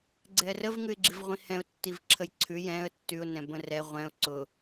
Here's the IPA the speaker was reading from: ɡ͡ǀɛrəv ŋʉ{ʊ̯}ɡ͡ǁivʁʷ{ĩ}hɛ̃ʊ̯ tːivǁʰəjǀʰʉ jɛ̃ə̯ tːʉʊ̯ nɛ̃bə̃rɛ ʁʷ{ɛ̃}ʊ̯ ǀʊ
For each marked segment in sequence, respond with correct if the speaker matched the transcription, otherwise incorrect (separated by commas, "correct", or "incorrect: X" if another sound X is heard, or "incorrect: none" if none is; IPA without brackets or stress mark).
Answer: incorrect: ɪ̯, correct, correct